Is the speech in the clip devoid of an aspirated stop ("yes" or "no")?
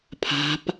no